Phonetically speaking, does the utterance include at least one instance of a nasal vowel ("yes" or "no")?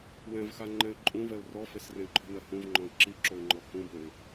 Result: yes